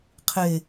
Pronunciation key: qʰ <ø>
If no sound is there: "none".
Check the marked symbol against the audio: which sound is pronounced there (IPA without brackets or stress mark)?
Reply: e